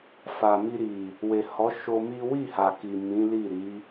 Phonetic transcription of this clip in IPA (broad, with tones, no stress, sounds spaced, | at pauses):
f a˨ m i˧ ɾ i˨ | w e˨ h ɔ˨˦ ʃ o˧ m i˦ w i˦˨ h a˨ k i˨ m ĩ˨˦ l i˦˨ ɾ i˨˦